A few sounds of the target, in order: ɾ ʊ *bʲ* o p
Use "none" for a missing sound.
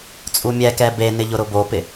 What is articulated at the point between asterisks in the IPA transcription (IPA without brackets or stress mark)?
b